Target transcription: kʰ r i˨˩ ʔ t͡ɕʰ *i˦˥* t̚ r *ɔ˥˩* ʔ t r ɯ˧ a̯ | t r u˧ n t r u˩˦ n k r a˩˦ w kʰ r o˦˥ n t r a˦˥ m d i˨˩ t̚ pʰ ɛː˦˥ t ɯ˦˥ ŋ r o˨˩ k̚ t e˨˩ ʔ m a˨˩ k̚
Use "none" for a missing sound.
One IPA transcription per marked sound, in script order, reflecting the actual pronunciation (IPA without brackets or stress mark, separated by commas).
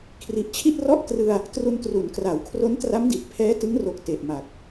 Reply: i˥˩, ɔ˥˩